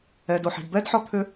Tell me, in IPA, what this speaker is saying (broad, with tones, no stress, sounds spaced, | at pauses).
ɛ˨ d o˨ ħ i̤˨ d b ɛ˦ d ħ ɔ˦ t̪ʰ ʏ˦